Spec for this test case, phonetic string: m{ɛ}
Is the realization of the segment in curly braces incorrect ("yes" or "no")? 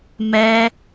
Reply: no